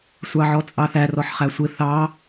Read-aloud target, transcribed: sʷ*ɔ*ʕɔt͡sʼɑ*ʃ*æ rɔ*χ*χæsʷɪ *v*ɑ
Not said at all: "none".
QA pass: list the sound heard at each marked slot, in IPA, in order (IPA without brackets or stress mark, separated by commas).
ɑ, θ, ħ, θ